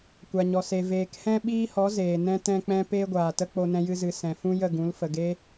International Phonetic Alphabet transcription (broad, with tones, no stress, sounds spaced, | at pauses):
kʷ a˨ ɲ ɔ˨ s e˨ v eː˨ k h ɛ̃˦ ɓ iː˦ h ɔ˨˦ z eː˨ n ɛ̃˦ t ɛ̃˦ k͡p ɛ̃˦ p eː˦ ɡʷ aː˨ t ə˦ k͡p o˦ n ɛ̃˦ j ɨ˦ z ɨ˧ s ɛ̃˨ f ũ˦ j ə˦˨ ɡ ũ˨˦ l f ə˨ ɡ e˦